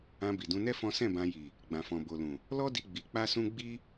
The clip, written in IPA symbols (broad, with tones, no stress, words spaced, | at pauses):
ã˧bi˨dũ˧nɛ˦ fɔ̃˦ sɛ̃˦˨bã˧ji˨ | ɡ͡bã˨fɔ̃˨bo˨lũ˨ | lɔ˦di˧ ɡ͡bi˧k͡pa˦sũ˦ ɡ͡bi˦